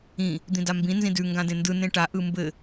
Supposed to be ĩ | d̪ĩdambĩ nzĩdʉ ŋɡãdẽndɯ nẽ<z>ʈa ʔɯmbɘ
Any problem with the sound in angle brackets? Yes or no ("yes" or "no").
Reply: yes